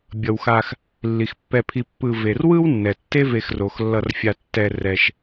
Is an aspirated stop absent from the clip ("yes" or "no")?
no